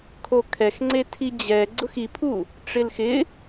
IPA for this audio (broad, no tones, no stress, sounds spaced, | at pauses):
kʰ o kʰ ɛ x ŋ͡ǀ e tʰ i d͡ʑ ɛ ɡ͡ǀ ʊ x i pʰ u | ʈ͡ʂ ɪ l x ɪ